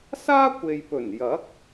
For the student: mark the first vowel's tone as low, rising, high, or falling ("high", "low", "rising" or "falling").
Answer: high